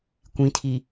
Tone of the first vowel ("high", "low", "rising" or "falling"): rising